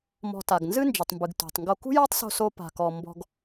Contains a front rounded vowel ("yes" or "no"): no